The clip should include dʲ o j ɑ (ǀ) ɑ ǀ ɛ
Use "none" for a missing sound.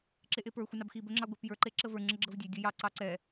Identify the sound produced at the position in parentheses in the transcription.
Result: ǀ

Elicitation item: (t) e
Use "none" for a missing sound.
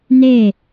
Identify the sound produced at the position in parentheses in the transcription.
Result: n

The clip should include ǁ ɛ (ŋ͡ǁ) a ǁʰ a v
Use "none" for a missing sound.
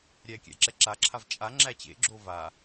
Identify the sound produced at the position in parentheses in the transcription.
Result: ǁ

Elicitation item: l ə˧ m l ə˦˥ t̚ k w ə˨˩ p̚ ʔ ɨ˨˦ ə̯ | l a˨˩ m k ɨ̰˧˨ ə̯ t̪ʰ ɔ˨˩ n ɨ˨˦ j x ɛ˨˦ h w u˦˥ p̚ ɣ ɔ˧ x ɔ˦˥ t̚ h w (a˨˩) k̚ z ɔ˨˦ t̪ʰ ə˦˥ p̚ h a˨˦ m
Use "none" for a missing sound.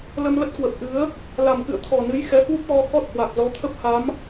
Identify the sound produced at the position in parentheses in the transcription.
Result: a˨˩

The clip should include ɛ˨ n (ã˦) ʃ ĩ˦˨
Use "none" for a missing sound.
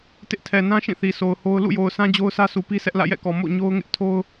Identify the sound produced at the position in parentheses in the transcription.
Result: ã˦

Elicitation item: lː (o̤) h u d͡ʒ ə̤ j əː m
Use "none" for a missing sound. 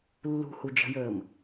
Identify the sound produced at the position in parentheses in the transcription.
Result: ṳ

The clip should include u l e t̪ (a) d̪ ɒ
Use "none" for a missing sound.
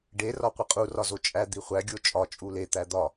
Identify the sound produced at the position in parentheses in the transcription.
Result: æ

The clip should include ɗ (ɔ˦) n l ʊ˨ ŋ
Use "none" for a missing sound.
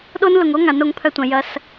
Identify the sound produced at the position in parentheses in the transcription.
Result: o˦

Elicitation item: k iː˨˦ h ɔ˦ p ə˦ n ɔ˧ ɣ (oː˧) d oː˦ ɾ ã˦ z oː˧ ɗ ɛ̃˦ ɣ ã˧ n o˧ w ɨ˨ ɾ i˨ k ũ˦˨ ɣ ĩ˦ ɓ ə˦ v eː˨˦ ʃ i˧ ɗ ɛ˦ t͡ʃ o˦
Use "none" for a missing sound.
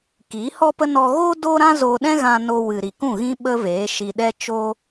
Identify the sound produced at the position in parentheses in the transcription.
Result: oː˦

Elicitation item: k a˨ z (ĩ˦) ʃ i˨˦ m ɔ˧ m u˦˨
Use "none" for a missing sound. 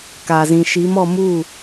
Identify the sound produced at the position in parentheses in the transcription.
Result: ĩ˨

